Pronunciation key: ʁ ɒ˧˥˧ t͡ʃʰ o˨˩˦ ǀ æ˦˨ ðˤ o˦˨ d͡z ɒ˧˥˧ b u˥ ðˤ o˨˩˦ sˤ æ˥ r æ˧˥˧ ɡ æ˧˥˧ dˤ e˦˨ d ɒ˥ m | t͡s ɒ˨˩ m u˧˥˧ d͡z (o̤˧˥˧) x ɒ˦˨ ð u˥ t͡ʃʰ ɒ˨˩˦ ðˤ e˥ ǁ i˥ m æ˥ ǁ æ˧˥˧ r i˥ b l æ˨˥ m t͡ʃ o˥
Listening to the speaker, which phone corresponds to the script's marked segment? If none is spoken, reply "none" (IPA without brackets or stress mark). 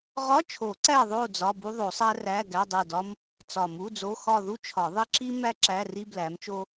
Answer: o˧˥˧